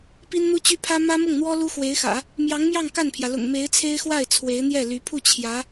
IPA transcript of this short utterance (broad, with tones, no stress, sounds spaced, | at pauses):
p i˥ n n̪ u˥ t͡ɕ y˥ pʰ ä˥ m ä˥ m ʊ˥˩ ŋ n̪ w ɔ˥ l u˥ x w e˧˥ ɪ̯ x ä̰˨˩˦ | m j ɑ˧˥ ŋ m j ɑ˥˧ ŋ k a˥˩ n pʰ j ä˩ l ʊ̰˨˩ ŋ m e˧˥ ɪ̯ t͡sʰ e˥ ɪ̯ x w a˥˩ ɪ̯ t͡sʰ w e˧˥ ɪ̯ n̪ j ɛ˥˩ l y˧˥ pʰ u˥˩ t͡ɕʰ j ä˧˥